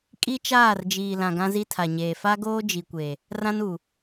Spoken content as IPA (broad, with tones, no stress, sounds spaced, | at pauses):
kʼ i˦ t͡ʃ aː˦˨ r d͡ʒ iː˨ l ã˨ ɡ ã˦ z i˦ tʰ a˨ ɲ eː˨ f a˦ ɡ oː˦ d͡ʒ i˨ kʷ e˨ | r ã˦ n u˨